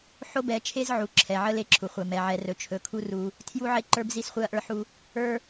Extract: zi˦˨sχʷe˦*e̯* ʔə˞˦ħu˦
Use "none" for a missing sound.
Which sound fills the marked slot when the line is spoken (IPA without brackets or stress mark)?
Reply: ɐ̯